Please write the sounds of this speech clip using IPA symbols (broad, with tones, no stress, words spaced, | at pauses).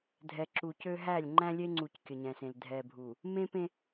dʱɛ˨ǁu˨cø˦ ɦæ˦˨lʲ ŋ͡ǃæ̃˦lʲe˦ŋ͡ǀu˨c kʲə˨ɲɛ̃˨sẽ˨l dʱɛ˨bʱu˨ | mẽ˦pẽ˦